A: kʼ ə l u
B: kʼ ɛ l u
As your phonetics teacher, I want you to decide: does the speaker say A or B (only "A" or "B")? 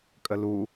A